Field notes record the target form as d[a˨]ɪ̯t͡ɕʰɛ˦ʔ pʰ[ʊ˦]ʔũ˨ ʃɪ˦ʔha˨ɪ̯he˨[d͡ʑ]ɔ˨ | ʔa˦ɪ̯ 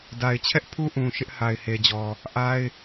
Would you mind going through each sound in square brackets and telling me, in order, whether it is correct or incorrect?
correct, incorrect, correct

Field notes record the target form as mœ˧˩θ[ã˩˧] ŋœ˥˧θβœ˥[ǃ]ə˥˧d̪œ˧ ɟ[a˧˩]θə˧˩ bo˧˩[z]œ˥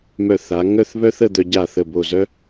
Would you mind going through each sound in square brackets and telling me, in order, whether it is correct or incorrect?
incorrect, incorrect, correct, correct

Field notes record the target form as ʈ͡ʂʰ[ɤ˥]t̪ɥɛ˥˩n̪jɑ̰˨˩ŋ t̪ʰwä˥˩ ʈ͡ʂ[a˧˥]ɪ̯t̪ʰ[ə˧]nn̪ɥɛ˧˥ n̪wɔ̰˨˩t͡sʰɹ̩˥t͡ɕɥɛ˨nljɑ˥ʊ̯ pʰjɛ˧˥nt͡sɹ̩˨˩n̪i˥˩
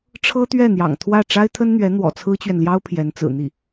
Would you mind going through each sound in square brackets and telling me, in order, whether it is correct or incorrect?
correct, incorrect, incorrect

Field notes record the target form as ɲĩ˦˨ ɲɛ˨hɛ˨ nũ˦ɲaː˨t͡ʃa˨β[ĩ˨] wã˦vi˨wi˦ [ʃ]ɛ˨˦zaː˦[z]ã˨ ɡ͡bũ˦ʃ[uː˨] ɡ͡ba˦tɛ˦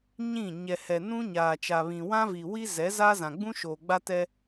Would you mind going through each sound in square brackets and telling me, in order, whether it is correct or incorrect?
correct, incorrect, correct, incorrect

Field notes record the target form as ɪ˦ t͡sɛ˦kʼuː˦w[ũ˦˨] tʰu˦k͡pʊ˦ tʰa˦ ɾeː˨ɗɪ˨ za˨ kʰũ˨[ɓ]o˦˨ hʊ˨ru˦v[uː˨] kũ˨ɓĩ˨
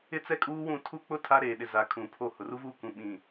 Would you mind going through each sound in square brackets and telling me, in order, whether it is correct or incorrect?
correct, incorrect, incorrect

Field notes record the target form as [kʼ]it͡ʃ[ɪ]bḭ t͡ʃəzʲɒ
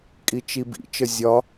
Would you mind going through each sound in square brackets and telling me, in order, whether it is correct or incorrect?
correct, incorrect

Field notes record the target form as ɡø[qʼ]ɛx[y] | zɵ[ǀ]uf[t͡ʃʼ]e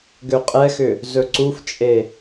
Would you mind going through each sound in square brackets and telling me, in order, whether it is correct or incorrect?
correct, incorrect, correct, correct

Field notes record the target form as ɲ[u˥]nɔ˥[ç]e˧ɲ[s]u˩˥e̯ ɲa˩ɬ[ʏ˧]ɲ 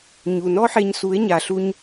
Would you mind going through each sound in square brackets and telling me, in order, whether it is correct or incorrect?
incorrect, incorrect, correct, incorrect

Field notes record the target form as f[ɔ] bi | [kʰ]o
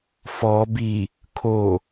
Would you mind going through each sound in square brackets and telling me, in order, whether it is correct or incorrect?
correct, correct

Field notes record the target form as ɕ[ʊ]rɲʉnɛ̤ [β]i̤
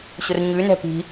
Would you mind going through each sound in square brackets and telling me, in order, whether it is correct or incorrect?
correct, incorrect

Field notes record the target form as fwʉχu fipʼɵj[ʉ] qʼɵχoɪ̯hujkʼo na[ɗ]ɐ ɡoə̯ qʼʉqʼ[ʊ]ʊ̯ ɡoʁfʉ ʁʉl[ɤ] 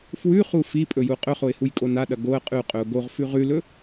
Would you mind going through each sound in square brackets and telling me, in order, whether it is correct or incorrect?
incorrect, correct, incorrect, incorrect

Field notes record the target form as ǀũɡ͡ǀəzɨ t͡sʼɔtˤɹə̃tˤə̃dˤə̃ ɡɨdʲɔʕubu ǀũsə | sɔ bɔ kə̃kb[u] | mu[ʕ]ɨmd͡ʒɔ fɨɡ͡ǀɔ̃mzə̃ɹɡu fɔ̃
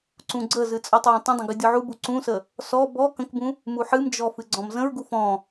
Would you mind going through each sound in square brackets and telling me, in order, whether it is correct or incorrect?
incorrect, incorrect

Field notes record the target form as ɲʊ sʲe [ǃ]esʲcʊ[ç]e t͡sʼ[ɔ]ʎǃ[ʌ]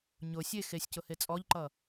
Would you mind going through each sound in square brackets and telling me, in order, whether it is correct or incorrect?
incorrect, incorrect, correct, correct

